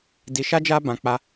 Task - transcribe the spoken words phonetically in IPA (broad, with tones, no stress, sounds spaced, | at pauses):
d i˧ ʃ a˦ d͡ʒ a˦ b ã˧ k͡p a˧